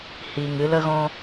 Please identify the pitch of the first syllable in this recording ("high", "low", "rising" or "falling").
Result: low